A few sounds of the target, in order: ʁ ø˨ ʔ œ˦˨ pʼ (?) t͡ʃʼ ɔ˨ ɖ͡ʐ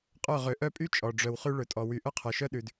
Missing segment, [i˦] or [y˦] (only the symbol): y˦